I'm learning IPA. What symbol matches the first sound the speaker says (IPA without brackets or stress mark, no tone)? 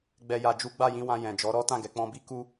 ɡ͡b